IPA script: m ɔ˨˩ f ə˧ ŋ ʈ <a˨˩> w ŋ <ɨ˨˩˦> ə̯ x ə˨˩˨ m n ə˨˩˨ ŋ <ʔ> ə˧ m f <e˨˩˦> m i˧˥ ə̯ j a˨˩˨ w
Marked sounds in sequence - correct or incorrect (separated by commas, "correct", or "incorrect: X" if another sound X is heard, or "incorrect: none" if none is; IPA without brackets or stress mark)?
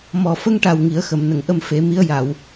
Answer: correct, incorrect: i˨˩˦, correct, correct